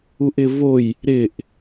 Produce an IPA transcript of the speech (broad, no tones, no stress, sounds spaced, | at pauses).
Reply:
u ʔ ɪ v o j | ɾ ɪ ʔ